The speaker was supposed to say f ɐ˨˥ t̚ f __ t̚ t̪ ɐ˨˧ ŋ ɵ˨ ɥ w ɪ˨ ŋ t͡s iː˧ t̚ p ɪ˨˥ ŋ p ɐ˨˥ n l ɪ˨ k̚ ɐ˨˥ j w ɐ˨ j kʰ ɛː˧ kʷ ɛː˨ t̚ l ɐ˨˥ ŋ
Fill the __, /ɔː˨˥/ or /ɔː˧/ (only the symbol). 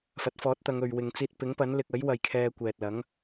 ɔː˨˥